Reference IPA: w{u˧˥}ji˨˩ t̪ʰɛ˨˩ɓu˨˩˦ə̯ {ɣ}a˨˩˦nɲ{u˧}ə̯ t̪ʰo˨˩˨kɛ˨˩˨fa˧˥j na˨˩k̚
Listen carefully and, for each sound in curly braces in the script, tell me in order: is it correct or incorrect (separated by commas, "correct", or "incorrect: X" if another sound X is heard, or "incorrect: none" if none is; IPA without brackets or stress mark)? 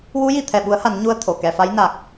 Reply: correct, incorrect: h, correct